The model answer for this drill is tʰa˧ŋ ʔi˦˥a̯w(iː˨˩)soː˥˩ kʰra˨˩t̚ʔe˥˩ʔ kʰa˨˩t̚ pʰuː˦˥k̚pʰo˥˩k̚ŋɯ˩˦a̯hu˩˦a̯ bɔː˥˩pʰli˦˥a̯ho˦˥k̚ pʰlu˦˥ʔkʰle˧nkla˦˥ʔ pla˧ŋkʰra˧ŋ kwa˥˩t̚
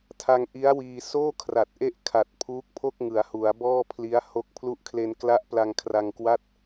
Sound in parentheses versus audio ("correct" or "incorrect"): incorrect